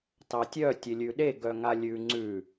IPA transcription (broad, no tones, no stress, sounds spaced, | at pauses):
t ɑ tʲ œ tʲ e lʲ ʉ ɗ e ɡ œ ŋ a lʲ ʉ ŋ͡ǀ ʉ